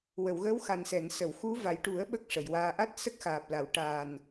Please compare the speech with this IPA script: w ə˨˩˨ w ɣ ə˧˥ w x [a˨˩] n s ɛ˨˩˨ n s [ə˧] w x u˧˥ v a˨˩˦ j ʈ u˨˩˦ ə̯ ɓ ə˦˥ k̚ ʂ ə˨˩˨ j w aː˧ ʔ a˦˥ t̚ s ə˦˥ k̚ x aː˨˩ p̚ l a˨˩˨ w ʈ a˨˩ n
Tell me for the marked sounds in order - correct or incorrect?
correct, incorrect: ə˨˩˨

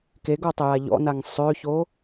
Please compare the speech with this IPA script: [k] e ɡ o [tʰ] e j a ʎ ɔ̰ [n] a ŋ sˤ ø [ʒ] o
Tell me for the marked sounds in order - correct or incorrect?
correct, incorrect: tˤ, correct, incorrect: ç

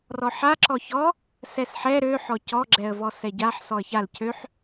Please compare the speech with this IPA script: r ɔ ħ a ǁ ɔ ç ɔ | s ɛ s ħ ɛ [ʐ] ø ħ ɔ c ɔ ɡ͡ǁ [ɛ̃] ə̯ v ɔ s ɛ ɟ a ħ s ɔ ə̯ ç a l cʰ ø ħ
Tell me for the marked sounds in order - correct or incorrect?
incorrect: ɾ, incorrect: ɛ

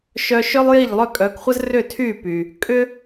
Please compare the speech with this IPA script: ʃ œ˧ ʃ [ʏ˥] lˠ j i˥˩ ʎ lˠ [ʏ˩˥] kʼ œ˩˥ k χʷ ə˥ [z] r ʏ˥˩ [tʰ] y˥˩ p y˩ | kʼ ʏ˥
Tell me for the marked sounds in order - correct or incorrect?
correct, incorrect: ʏ˥˩, correct, correct

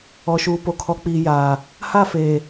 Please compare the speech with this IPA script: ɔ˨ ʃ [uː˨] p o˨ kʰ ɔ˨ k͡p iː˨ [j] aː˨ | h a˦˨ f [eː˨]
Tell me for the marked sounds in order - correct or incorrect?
correct, correct, correct

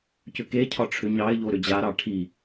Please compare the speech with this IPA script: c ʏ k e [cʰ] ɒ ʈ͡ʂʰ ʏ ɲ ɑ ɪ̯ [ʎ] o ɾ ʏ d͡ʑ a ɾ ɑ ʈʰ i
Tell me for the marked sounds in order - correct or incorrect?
correct, correct

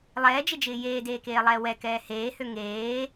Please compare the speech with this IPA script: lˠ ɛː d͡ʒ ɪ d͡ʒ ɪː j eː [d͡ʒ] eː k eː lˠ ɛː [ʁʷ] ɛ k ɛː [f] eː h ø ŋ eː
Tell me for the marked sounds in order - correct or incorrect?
incorrect: d, incorrect: w, incorrect: h

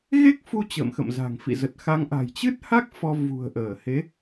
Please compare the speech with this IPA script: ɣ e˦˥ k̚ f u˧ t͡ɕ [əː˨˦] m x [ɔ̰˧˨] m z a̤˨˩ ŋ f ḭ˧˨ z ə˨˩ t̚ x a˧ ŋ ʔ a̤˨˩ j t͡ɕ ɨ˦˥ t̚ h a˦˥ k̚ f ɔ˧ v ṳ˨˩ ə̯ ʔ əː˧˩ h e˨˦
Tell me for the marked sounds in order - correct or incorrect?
incorrect: ə̰ː˧˨, incorrect: ə̰˧˨

